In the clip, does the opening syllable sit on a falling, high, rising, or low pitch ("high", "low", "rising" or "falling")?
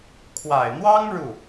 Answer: low